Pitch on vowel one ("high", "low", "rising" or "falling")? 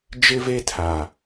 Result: high